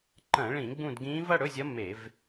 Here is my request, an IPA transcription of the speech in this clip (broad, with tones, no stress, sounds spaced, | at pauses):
ǃ ɐ̃˧˩˧ ɭ ĩ˧˩˧ ɡ͡b ũ˦˨ d ɡ ĩː˧˥ v ɐ˧˥˧ ɽ ɵ˧˥˧ zʲ ɐ˧˥ m e˧˩˧ v